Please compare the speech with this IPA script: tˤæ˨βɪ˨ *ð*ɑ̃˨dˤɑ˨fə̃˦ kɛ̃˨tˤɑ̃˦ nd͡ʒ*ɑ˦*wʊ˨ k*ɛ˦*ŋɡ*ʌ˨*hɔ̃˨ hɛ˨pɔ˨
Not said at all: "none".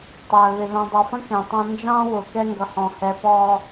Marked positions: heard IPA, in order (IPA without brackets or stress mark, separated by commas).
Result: ð, ɑ̃˦, ɛ˦, ʌ˨